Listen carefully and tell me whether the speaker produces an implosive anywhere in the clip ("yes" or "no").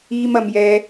no